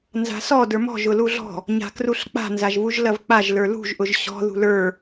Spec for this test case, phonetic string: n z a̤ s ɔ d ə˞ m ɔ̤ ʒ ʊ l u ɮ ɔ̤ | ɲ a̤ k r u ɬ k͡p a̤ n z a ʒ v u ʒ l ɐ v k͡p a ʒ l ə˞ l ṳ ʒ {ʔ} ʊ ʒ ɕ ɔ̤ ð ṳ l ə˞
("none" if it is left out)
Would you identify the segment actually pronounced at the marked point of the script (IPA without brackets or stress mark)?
ʔ